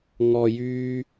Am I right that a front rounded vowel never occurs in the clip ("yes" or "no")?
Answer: no